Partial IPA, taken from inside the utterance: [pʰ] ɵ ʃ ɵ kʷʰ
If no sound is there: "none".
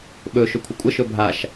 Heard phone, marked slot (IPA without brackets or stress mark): ɓ